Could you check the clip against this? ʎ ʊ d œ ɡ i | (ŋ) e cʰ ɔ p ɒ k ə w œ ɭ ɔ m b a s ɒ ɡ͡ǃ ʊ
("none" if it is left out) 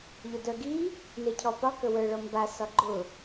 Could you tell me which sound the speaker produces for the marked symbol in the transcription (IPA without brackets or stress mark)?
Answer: n